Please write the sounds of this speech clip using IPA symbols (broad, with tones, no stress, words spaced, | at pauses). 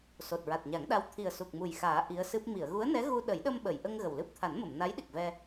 so˨˩t̚ɹa˨˩t̚ɲa˨˩˦ŋɗa˧˥w t̪ʰi˨˩ə̯su˨˩k̚mu˨˩j xaː˨˩˦ ʔi˧˥ə̯sɨ˦˥p̚ mi˨˩˨ə̯ɣu˧˥ə̯nɛ˧˥ɣu˧ ɗə˨˩˦jɗə˧mɓə˨˩˨jʔə˧ŋ ɣə˨˩wlɨ˦˥p̚ t̪ʰa˨˩˦nmə˨˩˨m na˧˥jɗi˨˩k̚vɛ˧